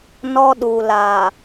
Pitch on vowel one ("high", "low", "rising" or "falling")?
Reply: high